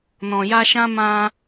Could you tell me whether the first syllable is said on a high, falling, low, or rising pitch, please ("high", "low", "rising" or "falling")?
low